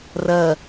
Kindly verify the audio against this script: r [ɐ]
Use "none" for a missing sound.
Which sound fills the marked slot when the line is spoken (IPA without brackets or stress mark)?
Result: ɐ